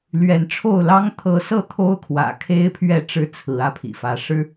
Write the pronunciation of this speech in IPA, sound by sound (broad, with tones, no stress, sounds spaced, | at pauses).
l ɥ ɛ˨˦ n ʈ͡ʂʰ o˥˨ ʊ̯ l ɑ˦ ŋ t̪ʰ ɤ˨˦ s ɤ˥˨ t̪ʰ o˦ ʊ̯ kʰ w ä̰˨˩ kʰ e˦ ɪ̯ pʰ ɥ ɛ˥˨ ʈ͡ʂ ɻ̩˥˨ t͡sʰ ɹ̩˨˦ ä˥˨ pʰ ḭ˨˩ f ä˨˦ ʂ ɻ̩˨˦